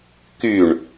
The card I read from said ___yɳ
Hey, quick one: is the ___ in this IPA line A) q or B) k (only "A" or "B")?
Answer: B